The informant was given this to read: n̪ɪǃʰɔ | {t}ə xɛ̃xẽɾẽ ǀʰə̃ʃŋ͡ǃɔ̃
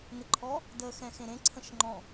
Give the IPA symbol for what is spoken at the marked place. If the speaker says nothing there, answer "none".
d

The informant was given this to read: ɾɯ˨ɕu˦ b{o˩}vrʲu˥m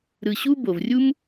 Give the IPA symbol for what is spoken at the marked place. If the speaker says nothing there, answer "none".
o˩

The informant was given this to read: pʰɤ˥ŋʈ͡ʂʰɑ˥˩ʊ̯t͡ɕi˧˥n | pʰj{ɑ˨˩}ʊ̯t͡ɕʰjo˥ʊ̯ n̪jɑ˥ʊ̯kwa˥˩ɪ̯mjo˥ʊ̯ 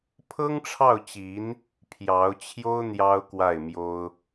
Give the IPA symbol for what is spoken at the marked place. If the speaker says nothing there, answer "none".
ɑ˧˥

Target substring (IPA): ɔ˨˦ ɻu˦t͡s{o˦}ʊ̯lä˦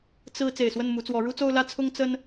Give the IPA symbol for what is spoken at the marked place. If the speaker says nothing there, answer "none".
o˦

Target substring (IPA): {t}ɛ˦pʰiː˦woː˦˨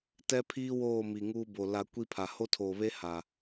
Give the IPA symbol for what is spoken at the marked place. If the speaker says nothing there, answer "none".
t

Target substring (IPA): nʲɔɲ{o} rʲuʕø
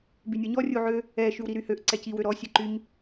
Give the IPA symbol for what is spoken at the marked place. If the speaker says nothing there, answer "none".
ɔ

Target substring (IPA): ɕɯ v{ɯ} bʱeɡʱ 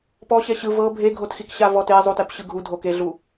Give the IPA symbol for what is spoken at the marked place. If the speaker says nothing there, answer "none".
ɤ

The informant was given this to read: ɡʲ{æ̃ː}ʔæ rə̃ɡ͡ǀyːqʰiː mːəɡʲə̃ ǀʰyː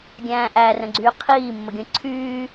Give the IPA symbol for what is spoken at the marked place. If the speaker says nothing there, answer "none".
æ̃ː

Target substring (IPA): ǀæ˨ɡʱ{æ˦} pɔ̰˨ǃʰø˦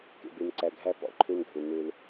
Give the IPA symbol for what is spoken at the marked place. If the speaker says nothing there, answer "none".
æ˦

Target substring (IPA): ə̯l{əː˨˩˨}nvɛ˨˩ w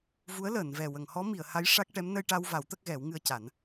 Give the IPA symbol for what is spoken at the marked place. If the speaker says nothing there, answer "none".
əː˨˩˨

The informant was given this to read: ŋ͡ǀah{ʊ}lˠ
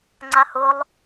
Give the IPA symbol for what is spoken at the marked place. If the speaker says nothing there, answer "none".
ʊ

